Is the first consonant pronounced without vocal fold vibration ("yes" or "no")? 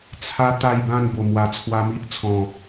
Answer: yes